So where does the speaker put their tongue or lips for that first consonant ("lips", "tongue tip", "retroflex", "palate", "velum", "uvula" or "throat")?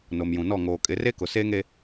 tongue tip